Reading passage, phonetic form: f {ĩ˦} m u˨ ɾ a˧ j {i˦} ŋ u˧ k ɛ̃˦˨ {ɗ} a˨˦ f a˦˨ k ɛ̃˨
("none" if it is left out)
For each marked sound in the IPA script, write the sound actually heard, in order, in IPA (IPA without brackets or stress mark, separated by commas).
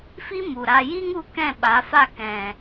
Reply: i˦, i˦, ɓ